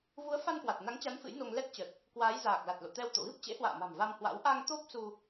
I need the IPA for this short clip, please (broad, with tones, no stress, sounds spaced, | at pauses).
v u˨˦ ə̯ f a˧ n k w a˨˩ t̚ n a˨˦ ŋ t͡ɕ a˨˦ n f ɨ̰˧˥ j n o˧ ŋ l ɛ˦˥ t̚ t͡ɕ ə˨˩ t̚ | k w aː˨˦ j z aː˨˩ k̚ l a˨˩ t̚ l o̰˧˨ t̪ ɛ˧ w t̪ o̰˧˨ ɣ ɨ˦˥ p̚ t͡ɕ ḛ˧˥ h w a̰ː˧˨ m a̤˨˩ m v a˧ m h w a̰˧˥ w ʔ a˧ ŋ t̪ o˦˥ p̚ s u˧